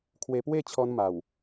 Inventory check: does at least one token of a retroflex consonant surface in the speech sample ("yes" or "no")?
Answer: no